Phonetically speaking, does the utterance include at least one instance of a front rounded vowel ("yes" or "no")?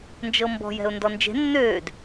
yes